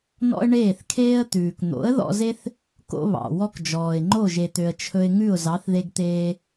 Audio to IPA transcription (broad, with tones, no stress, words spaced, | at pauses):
nɔ̰˥ə̯ɳeː˥˩θkʰeː˥ə̯ t̪ʉː˩kn̪o̰˩˥ə̯ ðɔ̰˧ze˥θ | ko̰˧βɑ̰˩ wɔ˥kd͡ʒɔː˩ɪ̯ ŋ͡ǃo˥˩ʒe˩t̪ø˩ə̯ t͡ʃʰɵ˧ɪ̯ŋʉ˥˩ʊ̯ zɑ˩˥θðe˧ɡt̪eː˧